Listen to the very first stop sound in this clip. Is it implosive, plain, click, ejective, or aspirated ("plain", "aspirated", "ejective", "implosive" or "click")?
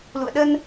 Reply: implosive